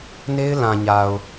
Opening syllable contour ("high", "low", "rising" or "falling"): high